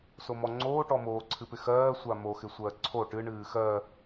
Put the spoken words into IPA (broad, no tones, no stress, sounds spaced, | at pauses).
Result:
s o m ɔ ŋ͡ǀ oː ʈ ɔ m oː ǀʰ ɨ p ɪ x ɜː sʷ a m o x ɪ sʷ ɜː ǀʰ o ʈ ɨ ɳ ɨː x ɜ